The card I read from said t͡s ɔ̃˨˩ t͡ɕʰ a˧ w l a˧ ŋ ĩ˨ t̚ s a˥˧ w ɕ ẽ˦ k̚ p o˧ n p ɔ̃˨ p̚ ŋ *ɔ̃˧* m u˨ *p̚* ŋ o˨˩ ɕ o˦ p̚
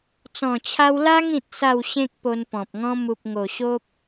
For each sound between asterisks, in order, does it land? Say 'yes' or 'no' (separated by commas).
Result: yes, yes